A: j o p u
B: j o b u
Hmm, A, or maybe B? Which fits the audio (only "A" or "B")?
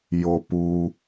A